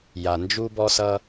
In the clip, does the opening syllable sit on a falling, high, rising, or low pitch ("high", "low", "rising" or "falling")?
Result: low